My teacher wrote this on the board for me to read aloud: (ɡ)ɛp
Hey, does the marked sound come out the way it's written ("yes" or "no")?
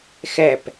no